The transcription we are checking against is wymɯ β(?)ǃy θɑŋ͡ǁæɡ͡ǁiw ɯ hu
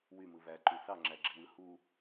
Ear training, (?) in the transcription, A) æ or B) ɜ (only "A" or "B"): A